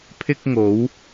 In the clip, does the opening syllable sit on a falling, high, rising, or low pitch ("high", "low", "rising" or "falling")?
high